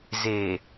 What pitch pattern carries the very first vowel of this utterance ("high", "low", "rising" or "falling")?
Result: low